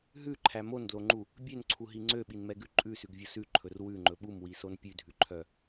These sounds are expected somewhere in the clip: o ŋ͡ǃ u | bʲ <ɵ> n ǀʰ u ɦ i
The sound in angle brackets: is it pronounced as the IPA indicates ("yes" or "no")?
no